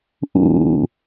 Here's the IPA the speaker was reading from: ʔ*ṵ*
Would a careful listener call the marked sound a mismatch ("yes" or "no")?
no